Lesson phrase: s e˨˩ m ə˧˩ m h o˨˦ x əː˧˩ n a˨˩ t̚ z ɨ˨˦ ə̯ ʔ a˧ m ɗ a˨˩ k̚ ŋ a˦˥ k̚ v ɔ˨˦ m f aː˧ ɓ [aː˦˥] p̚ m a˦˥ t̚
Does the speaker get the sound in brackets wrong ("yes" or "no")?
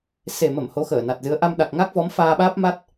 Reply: no